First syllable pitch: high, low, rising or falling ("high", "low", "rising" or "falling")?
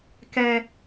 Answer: high